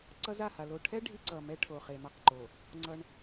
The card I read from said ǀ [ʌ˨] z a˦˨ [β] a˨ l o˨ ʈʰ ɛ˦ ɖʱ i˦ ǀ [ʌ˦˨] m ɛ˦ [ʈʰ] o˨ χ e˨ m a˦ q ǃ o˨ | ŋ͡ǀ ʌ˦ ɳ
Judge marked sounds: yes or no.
no, no, no, yes

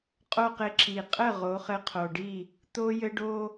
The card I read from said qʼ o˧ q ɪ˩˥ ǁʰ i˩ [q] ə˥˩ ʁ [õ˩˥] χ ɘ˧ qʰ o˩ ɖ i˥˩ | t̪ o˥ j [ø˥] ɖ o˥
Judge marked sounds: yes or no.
no, no, no

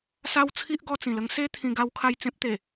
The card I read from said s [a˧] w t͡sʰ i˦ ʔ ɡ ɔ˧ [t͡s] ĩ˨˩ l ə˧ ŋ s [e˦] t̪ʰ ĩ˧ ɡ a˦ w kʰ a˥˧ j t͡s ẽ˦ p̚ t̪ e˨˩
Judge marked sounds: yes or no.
no, yes, yes

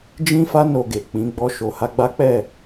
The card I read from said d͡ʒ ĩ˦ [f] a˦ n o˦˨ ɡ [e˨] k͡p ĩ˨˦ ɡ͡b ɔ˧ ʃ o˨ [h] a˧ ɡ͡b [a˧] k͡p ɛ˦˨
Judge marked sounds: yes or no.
yes, yes, yes, no

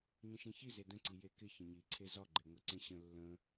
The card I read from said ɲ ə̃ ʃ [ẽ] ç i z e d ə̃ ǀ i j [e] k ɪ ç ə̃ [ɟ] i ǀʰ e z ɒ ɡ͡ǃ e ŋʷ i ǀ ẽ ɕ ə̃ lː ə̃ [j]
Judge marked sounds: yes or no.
yes, yes, no, no

